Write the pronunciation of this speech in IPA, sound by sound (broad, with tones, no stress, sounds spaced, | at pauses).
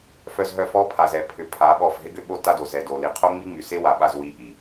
f œ˧ z ɦ œ˧ f ɔ˦ pʰ a˨ z ɛ˨ pʰ ʏ˨ pʰ a˨˦ ɓ ɔ˦˨ f ɦ ɪ˦ ɡ ʏ˦ ɓ o˦ t a˦ d o˨ z ɛ˨ d o˨ l i˨ qʰ o˦ ŋ͡m i˦ ŋ͡m y˨ s e˦ w a˨ ɓ a˧ z w i˦ ʔ i˨